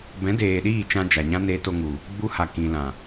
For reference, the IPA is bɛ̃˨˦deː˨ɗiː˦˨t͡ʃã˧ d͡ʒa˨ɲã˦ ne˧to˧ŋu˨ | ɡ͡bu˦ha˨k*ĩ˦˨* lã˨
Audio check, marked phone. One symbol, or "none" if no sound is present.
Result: ĩ˨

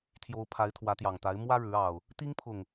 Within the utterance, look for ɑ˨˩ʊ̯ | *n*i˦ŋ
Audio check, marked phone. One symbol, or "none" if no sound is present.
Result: t̪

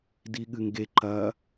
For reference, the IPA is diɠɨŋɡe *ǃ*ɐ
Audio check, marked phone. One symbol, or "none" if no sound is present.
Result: ǃ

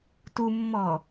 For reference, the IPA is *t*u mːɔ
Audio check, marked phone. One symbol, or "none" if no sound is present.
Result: t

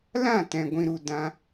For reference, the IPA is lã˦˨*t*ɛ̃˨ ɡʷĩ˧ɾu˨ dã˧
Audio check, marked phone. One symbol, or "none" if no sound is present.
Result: t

